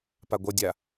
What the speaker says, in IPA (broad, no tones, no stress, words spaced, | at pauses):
paɡʷʌdʲa